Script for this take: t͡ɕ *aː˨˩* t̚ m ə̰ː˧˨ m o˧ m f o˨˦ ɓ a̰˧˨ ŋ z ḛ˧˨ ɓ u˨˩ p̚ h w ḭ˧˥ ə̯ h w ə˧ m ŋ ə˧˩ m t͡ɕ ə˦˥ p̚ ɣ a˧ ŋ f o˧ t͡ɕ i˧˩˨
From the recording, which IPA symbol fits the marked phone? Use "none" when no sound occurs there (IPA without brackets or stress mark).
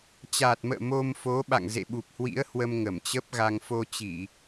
aː˨˩